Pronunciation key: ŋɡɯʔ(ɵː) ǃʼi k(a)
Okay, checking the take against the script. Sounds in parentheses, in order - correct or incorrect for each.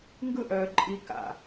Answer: incorrect, incorrect

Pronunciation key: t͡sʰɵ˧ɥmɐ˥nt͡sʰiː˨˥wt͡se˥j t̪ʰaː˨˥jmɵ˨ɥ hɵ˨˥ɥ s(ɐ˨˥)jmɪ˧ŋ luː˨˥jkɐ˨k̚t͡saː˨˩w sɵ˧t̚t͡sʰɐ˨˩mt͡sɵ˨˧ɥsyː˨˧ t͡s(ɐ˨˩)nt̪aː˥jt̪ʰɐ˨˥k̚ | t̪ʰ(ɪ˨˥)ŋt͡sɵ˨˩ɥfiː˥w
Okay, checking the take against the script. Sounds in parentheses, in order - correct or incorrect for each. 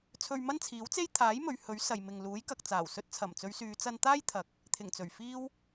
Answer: incorrect, incorrect, incorrect

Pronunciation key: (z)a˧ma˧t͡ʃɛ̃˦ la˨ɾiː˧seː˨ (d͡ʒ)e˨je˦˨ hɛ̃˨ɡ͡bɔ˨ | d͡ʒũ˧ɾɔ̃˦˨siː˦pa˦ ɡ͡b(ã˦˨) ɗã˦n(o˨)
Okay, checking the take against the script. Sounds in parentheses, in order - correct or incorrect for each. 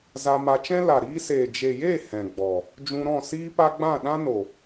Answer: correct, correct, correct, correct

